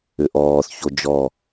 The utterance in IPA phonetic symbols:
ʏ ʔ ɔː θ ç o d͡ʒ ɔ

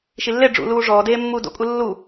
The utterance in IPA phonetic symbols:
ʃ i lː e ɖ͡ʐ ṵ l uː ʐ ɔː d eː mː uː d o̰ kʼ u lː u

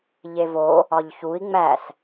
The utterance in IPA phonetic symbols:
ʎ e v o | ɒ ʎ ç u i̯ ŋ͡m æ s

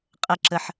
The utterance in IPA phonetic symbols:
qʼ ə ǁ ə ħ

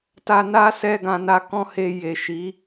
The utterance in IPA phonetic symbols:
t a˧ n a˦ s ɛ˧ ɡ ã˨ n a˧ k ɔ̃˦ h e˧ j e˨ ʃ i˨˦

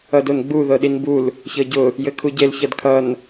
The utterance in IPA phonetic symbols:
ʌ d o n ɡ͡b u ð ɤ ɗ i n b u l | ç ɤ ɟ ʊ | j ɘ kʰ u ɟ e l ç ʌ d kʰ ʌ n

